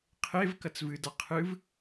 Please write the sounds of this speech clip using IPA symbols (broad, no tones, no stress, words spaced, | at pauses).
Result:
qʰev kɐt͡svɨda qʰɨv